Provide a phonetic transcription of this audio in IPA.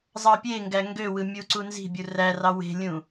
zˤ ɑ pʲ e ŋ ɡ æ ŋ ɡ ø w ɯ mʲ u ǀ u n z i̤ bʲ u r æ r ɑ w e̤ lʲ ũ

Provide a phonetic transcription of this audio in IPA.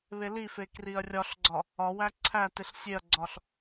β e l i f e k r i ɐ̯ rʲ ɒ ɬ ɡ͡ǀ ɒ | ɒ w æ ǀʰ æ t e ɬ sʲ e ɐ̯ ɡ͡ǀ ɒ ɬ

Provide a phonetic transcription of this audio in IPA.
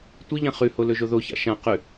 tʷ i ʎ ã χ ʉ h o l ɵ ʒ o ð o ç a̰ ʃ ã q ʉ

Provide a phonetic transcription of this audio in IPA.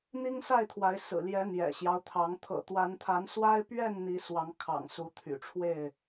n̪ i˦ ŋ s a˥˨ ɪ̯ t̪ʰ w a˨˦ ɪ̯ s ɹ̩˨˩ l j ɛ˨˦ n̪ j ɛ̰˨˩ ɕ j ɑ˦ ʊ̯ t̪ʰ ɑ˨˦ ŋ t̪ʰ ɤ̰˨˩ t̪ w a˨˦ n t̪ʰ a˨˦ n s w a˦ ɪ̯ p ɥ ɛ˥˨ n n̪ i˨˦ s w ɑ˨˦ ŋ kʰ ɑ̰˨˩ ŋ s u˨˦ t̪ʰ y̰˨˩ ʈ͡ʂʰ w e˥˨ ɪ̯

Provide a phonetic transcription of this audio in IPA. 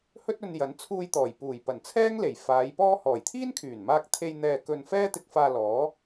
h ɵ˥ t̚ ɵ˧ n j ɐ˨˥ n t͡sʰ uː˧ j t̪ ɔː˨˩ j p uː˨˩ j p ɐ˨˩ n t͡sʰ ɛː˥ ŋ l e˨˩ j f aː˨˧ j p ɔː˥ h ɔː˨˩ j t̪ʰ iː˥ n kʰ yː˨˩ n m aː˧ k̚ t̪ʰ e˧ j n̪ ɛː˧ k ɵ˧ n f ɛː˥ t̪ ɪ˧ k̚ f aː˧ l ɔː˨˥

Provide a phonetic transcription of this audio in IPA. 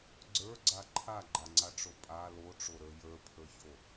ɡ͡ǀ ə˞ ɡ͡ǀ a ǃʰ a ɡ͡ǃ a ŋ͡ǀ a ʈ͡ʂ o pʼ a l o ʈ͡ʂ o ɾ ə˞ j ə˞ pʰ ə˞ ç o

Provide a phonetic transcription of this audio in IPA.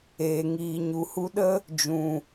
eː˨ ŋ iː˨ ɲ u˨ h u˧ ɗ ə˦ | d͡ʒ ũ˨

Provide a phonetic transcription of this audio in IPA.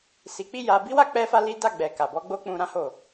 s i˧ k͡p i˦ j a˧ b i˦ w a˦ k͡p ɛ˦ f a˦ l i˦ d a˦˨ ɡ͡b ɛ˨ k a˨ b ɔ˧ ɡ͡b o˦ k͡p ũ˧ ɾ ã˦ h o˦˨

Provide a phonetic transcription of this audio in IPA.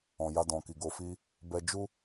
ɔ̃˨ j a˧ d ɔ̃˨ k i˨ ɡ o˧ f i˦ | b ɛ˧ d͡ʒ u˦

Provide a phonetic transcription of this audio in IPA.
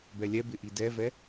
b ɛ lʲ ɛ b ɪ ʔ i d ɛ v ɛ

